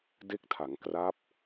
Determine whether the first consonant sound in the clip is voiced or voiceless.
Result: voiced